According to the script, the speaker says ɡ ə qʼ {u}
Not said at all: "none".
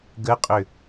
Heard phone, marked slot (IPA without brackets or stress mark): ʏ